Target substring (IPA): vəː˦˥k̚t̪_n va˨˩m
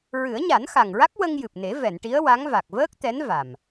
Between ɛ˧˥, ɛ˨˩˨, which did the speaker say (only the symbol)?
ɛ˧˥